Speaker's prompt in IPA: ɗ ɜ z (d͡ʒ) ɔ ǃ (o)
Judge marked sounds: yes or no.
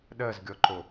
no, yes

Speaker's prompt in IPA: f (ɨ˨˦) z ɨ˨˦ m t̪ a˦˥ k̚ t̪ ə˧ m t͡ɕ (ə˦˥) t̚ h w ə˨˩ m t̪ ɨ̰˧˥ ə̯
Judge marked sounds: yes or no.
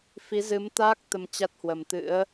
no, no

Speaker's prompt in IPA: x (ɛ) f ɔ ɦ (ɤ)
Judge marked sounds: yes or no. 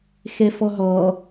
yes, no

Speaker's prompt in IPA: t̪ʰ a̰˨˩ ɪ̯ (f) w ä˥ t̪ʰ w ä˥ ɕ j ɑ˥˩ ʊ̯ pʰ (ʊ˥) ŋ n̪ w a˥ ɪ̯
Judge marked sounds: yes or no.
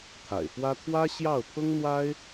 yes, yes

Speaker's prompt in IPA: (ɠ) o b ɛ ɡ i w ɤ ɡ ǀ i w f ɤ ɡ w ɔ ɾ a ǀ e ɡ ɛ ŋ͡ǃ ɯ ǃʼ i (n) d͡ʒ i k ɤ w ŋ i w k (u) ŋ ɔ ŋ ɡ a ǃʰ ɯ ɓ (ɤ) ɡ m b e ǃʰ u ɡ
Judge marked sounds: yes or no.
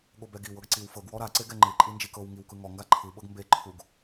yes, yes, no, yes

